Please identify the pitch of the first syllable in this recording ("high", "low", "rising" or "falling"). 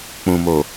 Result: low